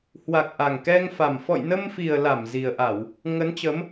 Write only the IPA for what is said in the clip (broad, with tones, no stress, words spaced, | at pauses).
hwa˨˩k̚ ʔa˨˩ŋkɛ˧ŋfa˨˩m fɔ̰˧˨jnə˧mfi˨˩ə̯ la˧˩m zi˨˩ə̯ʔa˧˩˨w | ŋə˨˦nt͡ɕə˨˦m